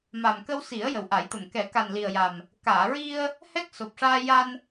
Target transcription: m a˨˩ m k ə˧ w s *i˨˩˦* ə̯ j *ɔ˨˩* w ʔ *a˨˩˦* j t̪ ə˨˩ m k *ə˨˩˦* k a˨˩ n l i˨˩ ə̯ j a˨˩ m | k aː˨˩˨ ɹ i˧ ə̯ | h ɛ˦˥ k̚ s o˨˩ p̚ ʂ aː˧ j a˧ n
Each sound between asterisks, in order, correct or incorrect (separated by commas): correct, incorrect, correct, incorrect